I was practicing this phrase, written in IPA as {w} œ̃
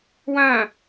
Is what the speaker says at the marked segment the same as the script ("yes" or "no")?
yes